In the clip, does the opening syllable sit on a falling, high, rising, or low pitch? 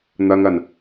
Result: low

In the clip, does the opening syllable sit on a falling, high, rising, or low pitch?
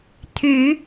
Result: rising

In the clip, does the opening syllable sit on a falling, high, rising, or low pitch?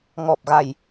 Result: low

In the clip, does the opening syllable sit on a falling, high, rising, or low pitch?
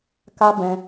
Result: high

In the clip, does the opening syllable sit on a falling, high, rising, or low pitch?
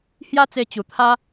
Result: high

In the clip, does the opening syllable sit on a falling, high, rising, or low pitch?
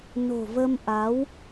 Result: low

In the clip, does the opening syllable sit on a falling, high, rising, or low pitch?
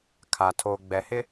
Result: low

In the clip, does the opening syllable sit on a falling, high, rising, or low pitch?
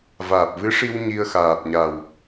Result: low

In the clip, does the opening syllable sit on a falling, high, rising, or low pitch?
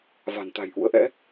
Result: low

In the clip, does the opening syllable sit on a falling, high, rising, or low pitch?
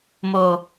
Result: low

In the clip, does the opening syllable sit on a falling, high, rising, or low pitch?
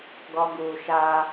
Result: high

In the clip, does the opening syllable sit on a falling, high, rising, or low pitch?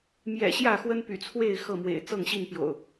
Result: low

